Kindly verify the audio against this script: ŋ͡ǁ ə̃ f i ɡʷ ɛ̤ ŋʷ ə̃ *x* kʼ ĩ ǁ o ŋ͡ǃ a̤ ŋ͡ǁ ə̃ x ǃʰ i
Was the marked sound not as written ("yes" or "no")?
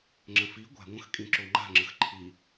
no